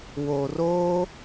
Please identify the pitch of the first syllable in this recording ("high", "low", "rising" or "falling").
low